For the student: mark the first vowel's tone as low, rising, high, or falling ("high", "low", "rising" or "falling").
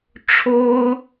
high